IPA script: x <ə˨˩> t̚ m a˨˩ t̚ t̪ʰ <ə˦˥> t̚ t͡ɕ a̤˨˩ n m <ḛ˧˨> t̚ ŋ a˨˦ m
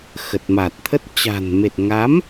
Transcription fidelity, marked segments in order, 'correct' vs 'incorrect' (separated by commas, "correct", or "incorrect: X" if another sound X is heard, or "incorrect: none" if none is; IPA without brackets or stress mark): correct, correct, incorrect: e˨˩